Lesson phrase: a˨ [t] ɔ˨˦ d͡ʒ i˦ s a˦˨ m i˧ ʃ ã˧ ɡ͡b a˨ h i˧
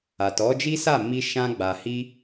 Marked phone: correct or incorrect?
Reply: correct